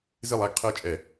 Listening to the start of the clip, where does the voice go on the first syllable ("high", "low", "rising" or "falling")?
falling